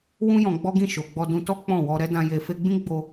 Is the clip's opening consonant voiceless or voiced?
voiced